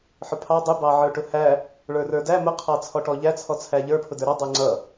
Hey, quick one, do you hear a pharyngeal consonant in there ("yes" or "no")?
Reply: yes